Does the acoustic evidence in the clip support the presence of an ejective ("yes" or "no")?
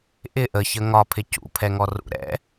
no